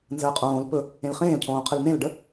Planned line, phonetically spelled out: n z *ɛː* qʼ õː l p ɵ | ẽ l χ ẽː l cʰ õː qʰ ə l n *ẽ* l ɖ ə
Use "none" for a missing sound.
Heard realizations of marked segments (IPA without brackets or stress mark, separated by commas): əː, ẽ